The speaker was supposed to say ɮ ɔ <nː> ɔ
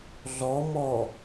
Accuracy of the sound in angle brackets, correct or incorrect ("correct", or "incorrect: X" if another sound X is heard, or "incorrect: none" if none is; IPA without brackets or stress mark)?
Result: incorrect: m